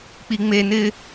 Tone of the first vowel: high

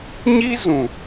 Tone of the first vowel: high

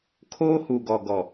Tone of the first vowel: high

